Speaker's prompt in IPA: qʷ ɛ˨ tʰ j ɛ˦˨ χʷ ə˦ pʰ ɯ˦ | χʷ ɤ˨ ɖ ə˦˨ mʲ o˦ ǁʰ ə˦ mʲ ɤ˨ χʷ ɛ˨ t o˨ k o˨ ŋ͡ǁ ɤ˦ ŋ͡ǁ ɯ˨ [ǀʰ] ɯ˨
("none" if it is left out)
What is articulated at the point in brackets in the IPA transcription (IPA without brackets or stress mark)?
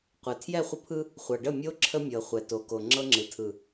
tʰ